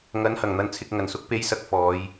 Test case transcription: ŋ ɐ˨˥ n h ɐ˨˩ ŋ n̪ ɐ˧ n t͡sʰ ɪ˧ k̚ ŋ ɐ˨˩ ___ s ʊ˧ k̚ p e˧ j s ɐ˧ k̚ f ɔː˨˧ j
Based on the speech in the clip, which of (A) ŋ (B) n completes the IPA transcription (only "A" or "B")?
B